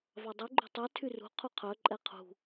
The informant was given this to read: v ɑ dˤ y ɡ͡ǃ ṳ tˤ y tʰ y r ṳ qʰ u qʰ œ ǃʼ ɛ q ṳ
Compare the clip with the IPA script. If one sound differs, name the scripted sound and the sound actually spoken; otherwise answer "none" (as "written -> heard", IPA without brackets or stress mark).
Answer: q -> qʰ